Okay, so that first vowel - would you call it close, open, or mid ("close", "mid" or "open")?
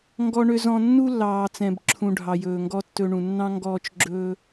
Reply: mid